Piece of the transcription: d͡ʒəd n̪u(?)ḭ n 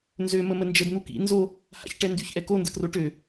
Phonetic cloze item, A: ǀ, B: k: B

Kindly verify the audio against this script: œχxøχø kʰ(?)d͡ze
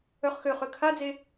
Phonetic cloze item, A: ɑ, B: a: B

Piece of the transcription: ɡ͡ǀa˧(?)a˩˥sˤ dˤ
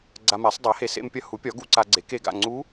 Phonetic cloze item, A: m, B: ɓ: A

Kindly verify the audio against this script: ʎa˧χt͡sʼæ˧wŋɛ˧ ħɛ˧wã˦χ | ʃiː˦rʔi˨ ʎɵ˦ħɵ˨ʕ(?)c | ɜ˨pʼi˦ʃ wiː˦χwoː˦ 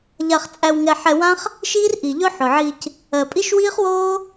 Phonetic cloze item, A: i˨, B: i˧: B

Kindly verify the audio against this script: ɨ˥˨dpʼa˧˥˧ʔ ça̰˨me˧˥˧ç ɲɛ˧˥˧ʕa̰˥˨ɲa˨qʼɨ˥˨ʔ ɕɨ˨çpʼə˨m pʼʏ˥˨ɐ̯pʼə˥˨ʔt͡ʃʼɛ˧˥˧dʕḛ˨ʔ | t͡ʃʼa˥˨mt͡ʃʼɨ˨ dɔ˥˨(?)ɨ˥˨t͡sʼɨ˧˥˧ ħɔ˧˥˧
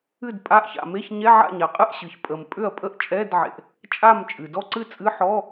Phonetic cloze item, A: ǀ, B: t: A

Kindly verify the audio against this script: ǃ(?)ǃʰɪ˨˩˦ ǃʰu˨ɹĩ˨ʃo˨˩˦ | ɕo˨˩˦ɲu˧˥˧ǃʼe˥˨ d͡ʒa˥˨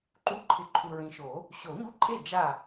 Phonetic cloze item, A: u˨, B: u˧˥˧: B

